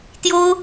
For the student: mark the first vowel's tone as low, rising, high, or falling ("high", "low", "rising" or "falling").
high